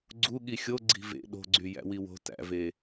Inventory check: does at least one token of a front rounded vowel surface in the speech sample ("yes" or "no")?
yes